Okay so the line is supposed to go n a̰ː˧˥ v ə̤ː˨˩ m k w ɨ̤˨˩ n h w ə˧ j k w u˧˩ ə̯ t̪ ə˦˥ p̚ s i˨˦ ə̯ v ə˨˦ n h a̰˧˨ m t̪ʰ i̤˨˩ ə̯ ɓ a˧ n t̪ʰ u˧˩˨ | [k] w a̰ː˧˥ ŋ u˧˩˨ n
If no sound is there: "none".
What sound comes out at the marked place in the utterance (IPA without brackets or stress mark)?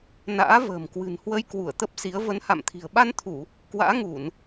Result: k